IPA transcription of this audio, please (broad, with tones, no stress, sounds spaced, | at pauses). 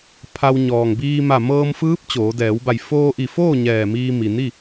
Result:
pʰ a˧ w ɲ ɔː˩ ŋ b iː˧ m a˧˩ m ɤː˧ m f ɯː˧˥ p̚ t͡ɕ oː˩˧ d ɛː˩˧ w b a˧˩ j f oː˧ ʔ i˧˩ f oː˥˨ ɲ ɛː˧˩ m iː˧ m i˩ n i˥˨